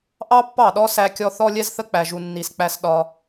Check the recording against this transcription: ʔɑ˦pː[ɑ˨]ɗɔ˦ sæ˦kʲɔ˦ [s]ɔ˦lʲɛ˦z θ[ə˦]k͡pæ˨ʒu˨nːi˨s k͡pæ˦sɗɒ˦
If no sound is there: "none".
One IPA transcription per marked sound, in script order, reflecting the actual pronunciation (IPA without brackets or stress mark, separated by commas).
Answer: ɑ˦˨, θ, ə˦